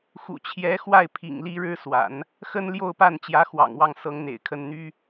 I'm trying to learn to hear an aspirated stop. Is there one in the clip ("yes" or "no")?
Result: yes